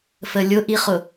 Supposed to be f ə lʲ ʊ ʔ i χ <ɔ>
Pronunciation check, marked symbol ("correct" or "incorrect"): incorrect